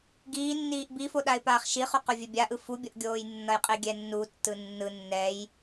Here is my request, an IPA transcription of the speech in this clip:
ɡ iː nː iː ʔ b i f o ɗ a ɪ̯ p aː χ ʃ i χ u q o vʲ ɛ bʲ a ʔ ɯ f u bʲ ʌ ʔ ɡʲ oː j nː ʌ j qʼ i ɡʲ ɛ nː u tː ɯ nː ɯ nː ɛ j

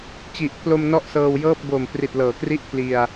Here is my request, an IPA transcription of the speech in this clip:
t͡ɕ i˨˩ ʔ pʰ l o˧ m n ɔ˥˩ ʔ s ɤː˧ w j ɤː˥˩ p̚ b o˨˩ m p r i˨˩ t̚ l ɤː˩˦ k r i˥˩ ʔ pʰ l i˧ a̯

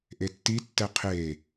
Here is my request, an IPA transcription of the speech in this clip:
ʔ e tː i tː ɛ qʰ e

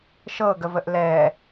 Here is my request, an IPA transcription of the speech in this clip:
ʃ ɤ ɡ ə v ə ʔ l ɛ

